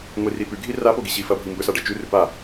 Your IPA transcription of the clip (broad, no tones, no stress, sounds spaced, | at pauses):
ŋʷ i r i p ʉ ɡʱ i r a p o ɡ i ɕ i f ɐ bʱ i m b ɵ s a ɖ ɐ t͡ʃ ʉ r ʉ p a